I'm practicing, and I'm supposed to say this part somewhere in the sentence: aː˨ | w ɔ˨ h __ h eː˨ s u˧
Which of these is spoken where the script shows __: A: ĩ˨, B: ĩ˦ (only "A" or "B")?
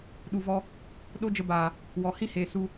B